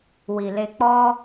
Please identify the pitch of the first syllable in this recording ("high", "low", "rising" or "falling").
low